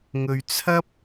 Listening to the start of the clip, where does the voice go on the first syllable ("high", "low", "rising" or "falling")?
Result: low